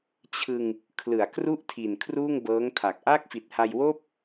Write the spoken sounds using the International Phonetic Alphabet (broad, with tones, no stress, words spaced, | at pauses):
t͡ɕʰɯ˧ŋ | kʰlɯ˩˦a̯kru˥˩ʔtʰi˨˩n kʰruː˥˩ŋbɤː˦˥ŋtʰa˨˩k̚ ʔaː˥˩k̚fi˨˩t̚ha˧jwoː˥˩p̚